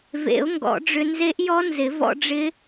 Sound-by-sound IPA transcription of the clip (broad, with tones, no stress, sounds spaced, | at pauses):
v ḛ˨˩˦ ʊ̯ ŋ ɡ ɔ̰˨˩˦ ɖ͡ʐ ʏ˧ n z e˦˥ ʔ j ɔ˦˥ n z ɪ˨˩˦ v ɔ̰˧ ɖ͡ʐ ɪ˦˥